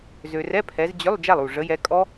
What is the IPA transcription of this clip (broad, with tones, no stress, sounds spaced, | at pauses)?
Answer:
z ø˨ r ɛ˧˥˧ pʰ ɛ˨˦ z d͡ʑ ʏ˧˥˧ lˠ d͡ʒ a˥˩ lˠ u˥˩ ʐ ə˨˦ j ɛ˨˦ kʼ ɔ˦˥